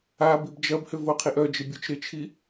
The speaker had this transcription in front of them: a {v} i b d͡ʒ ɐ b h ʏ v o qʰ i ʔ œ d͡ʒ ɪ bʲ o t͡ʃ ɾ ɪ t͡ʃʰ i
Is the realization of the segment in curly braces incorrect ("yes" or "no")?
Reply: yes